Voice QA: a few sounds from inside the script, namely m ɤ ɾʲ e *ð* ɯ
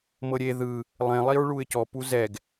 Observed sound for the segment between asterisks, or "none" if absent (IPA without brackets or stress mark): ð